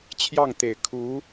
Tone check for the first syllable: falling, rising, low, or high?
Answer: falling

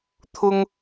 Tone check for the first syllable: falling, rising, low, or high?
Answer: high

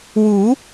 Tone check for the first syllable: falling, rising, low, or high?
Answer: rising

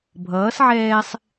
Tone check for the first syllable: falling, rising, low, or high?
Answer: rising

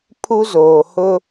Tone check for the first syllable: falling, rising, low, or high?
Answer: high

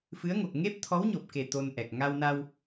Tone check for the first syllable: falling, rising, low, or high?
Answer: rising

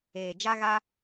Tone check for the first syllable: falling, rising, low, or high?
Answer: low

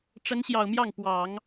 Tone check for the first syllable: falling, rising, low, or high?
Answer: rising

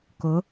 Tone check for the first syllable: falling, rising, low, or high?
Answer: rising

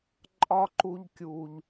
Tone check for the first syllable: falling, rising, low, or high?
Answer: high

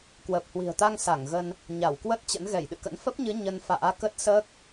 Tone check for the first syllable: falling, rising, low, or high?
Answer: low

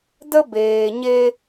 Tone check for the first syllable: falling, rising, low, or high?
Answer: high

